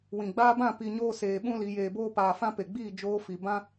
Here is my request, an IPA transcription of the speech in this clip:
w ĩ˨ ɡ͡b aː˧ b ã˦˨ p i˧ ɲ oː˦ s eː˧ ɓ ũ˦ l i˨˦ j eː˧ b oː˦ p aː˧ f ã˦ p e˨ ɡ͡b iː˦˨ d͡ʒ oː˧ f i˨ b ã˦

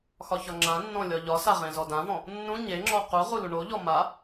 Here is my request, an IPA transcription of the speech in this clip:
x ɒ ç ɒ ŋ͡ǁ ã nː ɔ̃ lʲ ɒ ʎ ɒ s a ʁ ẽ z ɔ d ã v ɔ̃ | nː ũ ɲ e ŋ͡ǁ ɔ q u ʁ u l u ɳ o ʎ ɔ m a

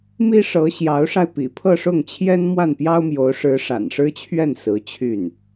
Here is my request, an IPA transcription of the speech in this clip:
m i˥ ʂ ɤ˧˥ ɕ j ɑ˧˥ ʊ̯ ʂ a˧ ɪ̯ p ḭ˨˩ pʰ ɤ˥˧ ʂ ʊ˥˩ ŋ t͡ɕʰ j ɛ˥ n m w a˥˩ n p j ɑ˥ ʊ̯ m j o˧˥ ʊ̯ ʂ ɻ̩˧˥ ʂ a̰˨˩ n ʂ ɻ̩˥ t͡ɕʰ ɥ ɛ˥˩ n s ɹ̩˧˥ t͡ɕʰ y˥˩ n

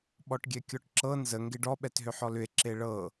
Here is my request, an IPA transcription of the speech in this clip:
ɓ ɔ ʈ ɡʲ ɛ kʲ ɔ ʈ ǁ ɤ n z ə ŋ ɡ e ɖ ɔ ɓ ɛ t ɦ ʏ ħ ɔ l ʏ e̯ ǁ e ɭ ɤ

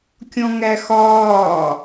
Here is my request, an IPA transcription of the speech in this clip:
kʲ ɔ̃ ŋ æ x ɒː

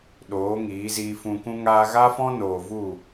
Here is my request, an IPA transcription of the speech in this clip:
ɗ oː˨˦ ŋ iː˨˦ z iː˧ f ũ˧ k ũ˦ ŋ aː˦ ɣ a˦ f ɔ̃˦ n oː˨ v u˦˨

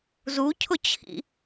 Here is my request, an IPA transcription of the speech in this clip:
z u cʰ ʊ t͡ɕʰ ḭ

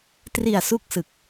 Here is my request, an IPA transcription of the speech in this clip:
t r i˨˩ a̯ s u˦˥ k̚ s ɯ˨˩ k̚

